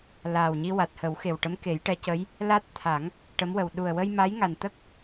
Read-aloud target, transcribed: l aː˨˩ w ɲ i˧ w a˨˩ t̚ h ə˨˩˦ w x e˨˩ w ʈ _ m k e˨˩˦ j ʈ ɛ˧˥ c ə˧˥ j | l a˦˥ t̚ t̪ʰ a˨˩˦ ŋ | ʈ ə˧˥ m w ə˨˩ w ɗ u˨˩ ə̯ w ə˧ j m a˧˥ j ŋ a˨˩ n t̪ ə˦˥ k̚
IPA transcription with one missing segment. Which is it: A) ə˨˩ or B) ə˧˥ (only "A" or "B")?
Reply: B